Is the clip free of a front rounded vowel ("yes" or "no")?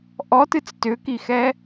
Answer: no